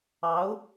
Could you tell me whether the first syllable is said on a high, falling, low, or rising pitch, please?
rising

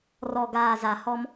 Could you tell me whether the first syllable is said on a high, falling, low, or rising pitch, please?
low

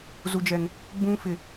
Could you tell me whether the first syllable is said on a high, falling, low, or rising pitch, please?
high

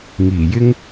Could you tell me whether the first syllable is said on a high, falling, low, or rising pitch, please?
low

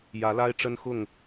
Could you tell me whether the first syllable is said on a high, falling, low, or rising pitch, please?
rising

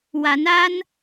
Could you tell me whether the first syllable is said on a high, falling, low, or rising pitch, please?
rising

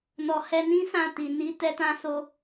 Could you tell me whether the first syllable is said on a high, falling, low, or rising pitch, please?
low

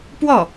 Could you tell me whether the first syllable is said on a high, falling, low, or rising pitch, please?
falling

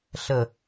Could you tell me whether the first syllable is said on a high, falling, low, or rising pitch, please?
falling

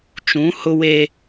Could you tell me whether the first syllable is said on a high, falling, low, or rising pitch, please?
rising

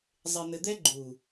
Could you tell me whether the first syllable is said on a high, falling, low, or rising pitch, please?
low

